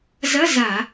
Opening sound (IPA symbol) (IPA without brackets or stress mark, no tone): z